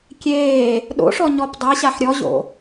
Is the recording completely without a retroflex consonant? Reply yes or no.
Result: no